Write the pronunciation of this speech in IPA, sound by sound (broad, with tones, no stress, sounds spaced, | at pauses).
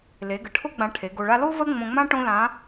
l e˩˧ ɡ ə˩ ʈʰ o˥ ɡ͡b ã˧ ʈʰ e˩˧ ɡ o˧ ɭ a˥ l o˥ v ə˥ ŋ͡m õ˧ ŋ͡m ã˥ ʈ õ˥ l ã˧˥